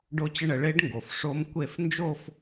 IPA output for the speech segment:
ɖo˦˥t͡ɕə˥˩ɳə˧ ɭe˦˥ɖŋɡo˩f ʂo˦˥m kʷe˥˩f nd͡ʒo˥˧f

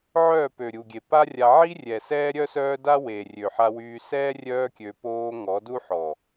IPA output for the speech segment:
ʕœː˦˨pø˨ ɾʲu˨ɡʲe˨pa˦rʲa˧ ʕi˦rʲɛ˨ sɛː˦ɾʲœ˦sœː˦ da˦we˨rʲø˨ ħa˧wyː˧sɛː˦ rʲœː˦kʲø˧ poː˧ ŋɔ˨˦du˦ ħɔ˨

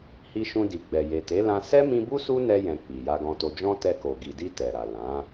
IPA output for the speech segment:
hi˧ʃũ˧di˨ɡ͡bɛ˨ je˨te˨˦lã˧ sɛ˦mĩ˧bu˦ su˦nɛ˧jɛ̃˨ k͡pi˨ja˧ɡɔ̃˧to˧ d͡ʒɔ̃˦tɛ˧ko˨ ɡi˨di˧ tɛ˨ɾa˨ lã˨˦

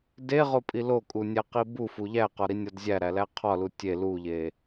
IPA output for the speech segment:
deʁopʼi lokʼunʲæqi bufu ʎæqɒɾinʲɒd zʲæɾælæ qʰɒlu tʲe luʎe

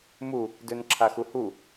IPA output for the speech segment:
mu | dønǁʰaxuhu

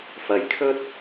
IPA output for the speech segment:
fɐ˨jkʰɵ˥t̚

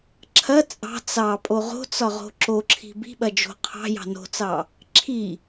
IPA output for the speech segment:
ǁʰɐ t͡sʼɑ̤ t͡sɑpʼo ʁo̤t͡sɒʁo̤ ǁoǁʰi̤ bi̤ɓɐd͡ʒo̤ qʰɑ̤jɑ̤ no̤t͡sɑ | ǁʰi

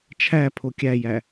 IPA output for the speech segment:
t͡ʃʰæpʰo kʲæjæ

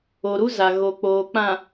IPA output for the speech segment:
o˨ɾu˦za˨ ɣo˨k͡poː˨ k͡pã˨

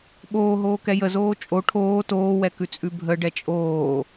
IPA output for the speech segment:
ɓoː ɦoːkɛjəzoː t͡ʃʼo ʈʰoː toːwɛkʉ t͡sʼʉbʱəɖɛ t͡ʃʼoː

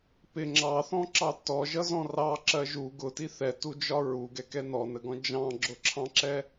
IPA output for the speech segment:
pɪ ŋ͡ǁɑθɔ̃ǁɑ tɔʒʌzɔ̃ rɑǁɜ ʒu ɡʊti θɛtud͡ʒɒ ɹuɡɛkɛ nɔnəɡɔ̃ d͡ʒɑ̃ɡ͡ǁʊǁʰɑ̃ǁɛ

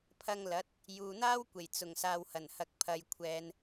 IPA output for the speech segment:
pʰɐ˧ŋlɐ˨˥t̚ | juː˨n̪aː˥wkʷe˨˩j t͡sʊ˨˩ŋ saː˨whɐ˨˩nhɐ˨k̚ pʰɐ˨j kʷʰɛː˨n

